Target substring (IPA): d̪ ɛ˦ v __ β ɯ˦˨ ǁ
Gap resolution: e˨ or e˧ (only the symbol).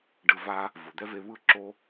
e˧